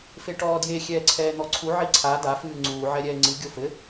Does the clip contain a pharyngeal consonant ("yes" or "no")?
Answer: yes